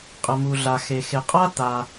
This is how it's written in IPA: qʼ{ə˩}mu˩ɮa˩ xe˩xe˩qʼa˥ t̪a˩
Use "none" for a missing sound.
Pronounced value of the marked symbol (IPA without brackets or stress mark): ə˩